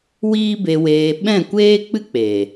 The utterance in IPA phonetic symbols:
w iː˦ b e˧ w eː˧ ɓ ɛ̃˦˨ kʷ eː˦ k͡p ɨ˦ k͡p e˨

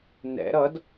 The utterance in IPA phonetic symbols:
n ɛ̰ ɾ ʌ d

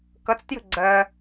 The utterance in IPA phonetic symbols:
k ʌ t͡s t j ə̤ ɡ͡ǀ ɜ

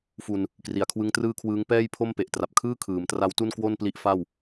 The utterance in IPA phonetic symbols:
f u˧ n | k r i˩˦ a̯ kʰ w ɯ˦˥ ŋ t r ɯː˥˩ kʰ w ɯː˦˥ ŋ p ɛː˥˩ j pʰ o˥˩ m p e˨˩ ʔ t r a˨˩ p̚ kʰ ɯː˥˩ kʰ ɯː˩˦ m t r a˦˥ w t u˥˩ n k w o˥˩ n p l i˦˥ ʔ f a˥˩ w

